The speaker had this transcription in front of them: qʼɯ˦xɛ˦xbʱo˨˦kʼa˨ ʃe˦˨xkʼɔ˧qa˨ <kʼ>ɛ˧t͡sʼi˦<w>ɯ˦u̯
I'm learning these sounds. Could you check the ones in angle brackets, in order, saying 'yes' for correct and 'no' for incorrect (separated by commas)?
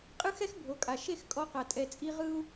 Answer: no, no